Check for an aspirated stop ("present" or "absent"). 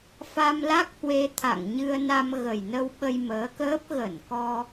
present